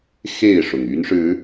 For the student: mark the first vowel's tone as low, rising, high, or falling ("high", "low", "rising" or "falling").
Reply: falling